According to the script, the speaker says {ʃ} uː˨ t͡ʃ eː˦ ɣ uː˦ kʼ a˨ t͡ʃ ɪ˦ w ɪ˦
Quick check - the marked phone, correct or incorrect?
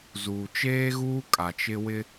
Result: incorrect